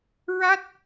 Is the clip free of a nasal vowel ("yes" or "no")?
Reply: yes